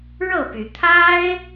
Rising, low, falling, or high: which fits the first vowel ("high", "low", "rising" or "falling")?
falling